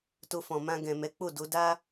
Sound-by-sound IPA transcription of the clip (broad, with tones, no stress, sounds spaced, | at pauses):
t o˧ f ɔ̃˨ m ã˧ ɡ ɛ̃˨ m ɛ˨˦ k͡p o˦˨ d o˨˦ d a˦